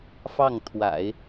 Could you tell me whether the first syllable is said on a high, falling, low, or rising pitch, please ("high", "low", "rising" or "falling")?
falling